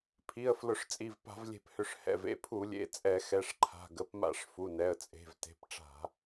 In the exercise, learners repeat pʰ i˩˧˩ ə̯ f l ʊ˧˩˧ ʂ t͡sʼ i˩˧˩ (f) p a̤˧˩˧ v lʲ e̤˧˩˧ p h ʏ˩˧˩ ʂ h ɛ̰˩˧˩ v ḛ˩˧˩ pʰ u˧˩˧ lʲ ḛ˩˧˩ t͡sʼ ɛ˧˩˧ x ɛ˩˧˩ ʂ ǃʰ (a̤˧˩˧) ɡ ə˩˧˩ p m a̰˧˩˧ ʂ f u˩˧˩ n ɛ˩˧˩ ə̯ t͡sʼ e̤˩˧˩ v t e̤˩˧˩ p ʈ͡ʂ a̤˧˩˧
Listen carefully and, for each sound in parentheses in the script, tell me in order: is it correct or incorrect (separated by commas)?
incorrect, incorrect